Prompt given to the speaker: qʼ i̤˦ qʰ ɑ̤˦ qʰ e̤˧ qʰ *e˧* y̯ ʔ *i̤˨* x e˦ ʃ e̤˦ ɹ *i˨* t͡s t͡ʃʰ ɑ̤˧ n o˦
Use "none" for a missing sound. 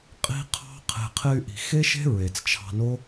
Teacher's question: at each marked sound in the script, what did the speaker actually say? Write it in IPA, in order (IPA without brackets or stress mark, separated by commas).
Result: e˧, i̤˨, e˨